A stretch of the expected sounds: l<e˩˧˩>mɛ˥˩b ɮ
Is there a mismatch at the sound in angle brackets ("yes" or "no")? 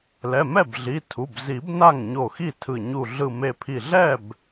yes